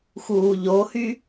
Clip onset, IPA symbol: x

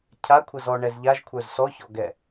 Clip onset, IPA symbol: cʰ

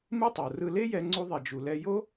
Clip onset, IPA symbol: m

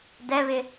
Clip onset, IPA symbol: d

